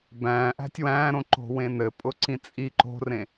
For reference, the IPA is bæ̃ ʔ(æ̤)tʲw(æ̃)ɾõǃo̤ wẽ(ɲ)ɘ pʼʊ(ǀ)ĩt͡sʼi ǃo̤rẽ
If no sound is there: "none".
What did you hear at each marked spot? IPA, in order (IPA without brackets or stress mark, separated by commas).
æ̤, æ̃, n, ǀ